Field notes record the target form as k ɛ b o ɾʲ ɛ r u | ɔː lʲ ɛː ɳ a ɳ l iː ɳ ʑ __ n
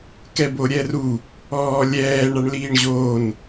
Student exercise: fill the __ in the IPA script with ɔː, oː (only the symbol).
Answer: oː